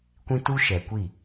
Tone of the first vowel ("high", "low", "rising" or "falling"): high